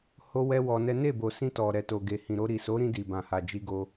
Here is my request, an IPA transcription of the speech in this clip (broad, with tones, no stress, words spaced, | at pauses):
ho˦wɛ˦wɔ˧nɛ˦ ne˦˨bo˨sĩ˧ tɔ˨ɾɛ˨to˨ɡe˨ hĩ˨ɾo˧ ɾi˨so˨˦ɾĩ˧ di˨bã˨ ha˨d͡ʒi˧ɡo˧